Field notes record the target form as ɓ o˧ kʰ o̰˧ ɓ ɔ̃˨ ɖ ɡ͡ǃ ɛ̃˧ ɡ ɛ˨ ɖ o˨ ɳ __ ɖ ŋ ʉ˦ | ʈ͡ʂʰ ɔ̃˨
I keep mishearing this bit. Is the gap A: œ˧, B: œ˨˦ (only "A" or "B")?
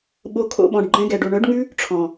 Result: B